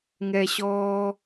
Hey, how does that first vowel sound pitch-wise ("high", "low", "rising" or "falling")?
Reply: high